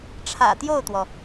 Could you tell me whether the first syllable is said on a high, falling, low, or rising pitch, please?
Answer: low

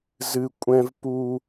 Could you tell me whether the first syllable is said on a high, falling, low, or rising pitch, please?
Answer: high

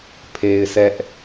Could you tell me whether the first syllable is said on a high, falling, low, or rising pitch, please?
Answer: low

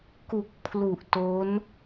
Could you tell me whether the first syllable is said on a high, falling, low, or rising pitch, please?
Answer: low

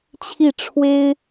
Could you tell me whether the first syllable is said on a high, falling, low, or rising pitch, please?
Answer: falling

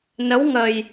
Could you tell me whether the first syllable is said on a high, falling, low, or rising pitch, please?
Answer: rising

